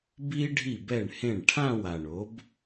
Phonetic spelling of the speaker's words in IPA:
b i˥ ɖʱ i˥˩ b ɛ˥˩ ɳ h ẽ˥˩ ɳ ʈʰ ã˥˧ w a˨˩ ɳ o˩˥ b

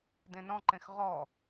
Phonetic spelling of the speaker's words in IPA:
d ẽ n ɔ̃ ǃ ẽ x ʁ ɔ

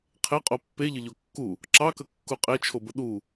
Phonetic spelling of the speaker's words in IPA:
qʰ e qʼ o pː e ʎ ə ʎ o kː u | ǁ ɑ k ə kː u qʼ e t͡ʃʰ o b ə ɗ u

